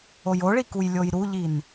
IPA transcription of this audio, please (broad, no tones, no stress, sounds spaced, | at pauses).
o j o ɭ i k u j lʲ o j ɾ u ʎ i n